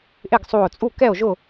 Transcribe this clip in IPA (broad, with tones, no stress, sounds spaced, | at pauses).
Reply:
ʔ ɪ˥˨ ɡ sˤ u˧˩ o̯ t͡sʼ u˥˨ k ɛ˥˨ o̯ ʒ ʊ˥˨